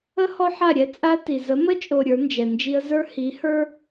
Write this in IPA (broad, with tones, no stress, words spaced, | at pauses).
ə˦ hɔ˦ħa˦˨ɾʲɛ˦ t͡sʼa˦ ti˨ zə˨˦mə˦t͡ʃʼo˨ ɾʲə˞˨˦nd͡ʒɛ˨nd͡ʒi˦ə̯ zə˞˦hi˨˦ hə˞˦